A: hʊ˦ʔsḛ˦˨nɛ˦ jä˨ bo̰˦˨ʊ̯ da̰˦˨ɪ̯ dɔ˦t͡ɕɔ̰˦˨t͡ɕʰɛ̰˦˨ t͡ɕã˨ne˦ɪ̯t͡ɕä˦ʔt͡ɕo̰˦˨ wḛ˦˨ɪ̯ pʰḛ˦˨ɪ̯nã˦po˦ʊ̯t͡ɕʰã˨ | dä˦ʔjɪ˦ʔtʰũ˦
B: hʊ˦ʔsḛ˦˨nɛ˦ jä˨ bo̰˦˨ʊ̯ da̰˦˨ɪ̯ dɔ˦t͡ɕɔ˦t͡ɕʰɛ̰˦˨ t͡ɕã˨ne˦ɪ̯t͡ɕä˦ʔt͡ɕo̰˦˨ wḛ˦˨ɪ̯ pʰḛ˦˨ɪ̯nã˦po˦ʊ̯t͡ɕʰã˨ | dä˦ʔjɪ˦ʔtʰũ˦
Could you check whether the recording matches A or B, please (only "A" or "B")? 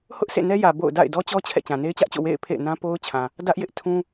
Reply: B